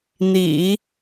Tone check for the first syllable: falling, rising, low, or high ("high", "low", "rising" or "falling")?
low